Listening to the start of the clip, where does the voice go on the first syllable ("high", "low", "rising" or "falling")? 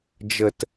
low